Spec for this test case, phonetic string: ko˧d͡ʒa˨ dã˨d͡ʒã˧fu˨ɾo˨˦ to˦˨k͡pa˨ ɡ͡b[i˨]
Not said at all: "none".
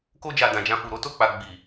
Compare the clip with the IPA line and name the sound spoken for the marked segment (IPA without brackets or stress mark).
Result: i˨